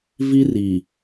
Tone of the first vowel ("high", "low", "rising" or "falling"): high